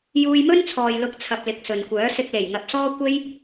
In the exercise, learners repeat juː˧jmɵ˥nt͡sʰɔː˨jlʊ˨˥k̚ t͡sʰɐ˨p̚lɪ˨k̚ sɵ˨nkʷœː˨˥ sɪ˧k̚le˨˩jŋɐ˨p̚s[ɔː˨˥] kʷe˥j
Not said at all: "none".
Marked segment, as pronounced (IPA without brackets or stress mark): ɔː˥